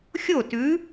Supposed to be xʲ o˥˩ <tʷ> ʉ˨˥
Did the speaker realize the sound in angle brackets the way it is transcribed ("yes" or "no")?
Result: no